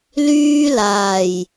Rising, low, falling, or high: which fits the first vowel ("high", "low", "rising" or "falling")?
high